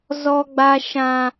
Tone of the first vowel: high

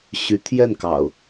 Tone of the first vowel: rising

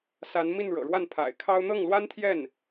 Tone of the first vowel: rising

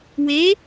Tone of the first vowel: rising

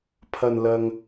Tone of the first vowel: low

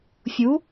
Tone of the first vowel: rising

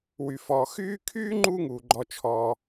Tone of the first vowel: low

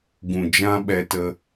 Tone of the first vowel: low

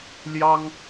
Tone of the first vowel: high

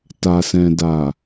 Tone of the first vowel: low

